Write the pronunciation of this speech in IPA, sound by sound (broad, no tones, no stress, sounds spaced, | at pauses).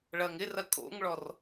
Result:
ɭ ɐ ŋ ɪ r ɐ kʼ o̰ ŋ ɭ ɔ r